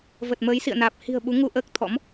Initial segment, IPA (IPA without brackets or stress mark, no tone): v